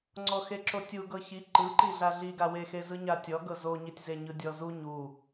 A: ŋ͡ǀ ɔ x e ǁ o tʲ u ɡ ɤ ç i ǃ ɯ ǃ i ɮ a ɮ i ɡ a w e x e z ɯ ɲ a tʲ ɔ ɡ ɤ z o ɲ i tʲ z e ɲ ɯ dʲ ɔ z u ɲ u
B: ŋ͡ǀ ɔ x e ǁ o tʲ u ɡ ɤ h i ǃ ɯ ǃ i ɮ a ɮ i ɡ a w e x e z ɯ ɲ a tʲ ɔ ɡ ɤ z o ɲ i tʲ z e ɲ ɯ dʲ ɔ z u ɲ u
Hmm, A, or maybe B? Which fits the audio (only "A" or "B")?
A